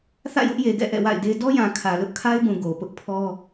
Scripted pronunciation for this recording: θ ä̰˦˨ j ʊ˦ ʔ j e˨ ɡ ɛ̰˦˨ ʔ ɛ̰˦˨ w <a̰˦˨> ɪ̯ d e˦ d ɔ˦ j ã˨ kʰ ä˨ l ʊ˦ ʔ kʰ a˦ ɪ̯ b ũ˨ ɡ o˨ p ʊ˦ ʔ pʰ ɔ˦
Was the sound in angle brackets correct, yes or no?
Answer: yes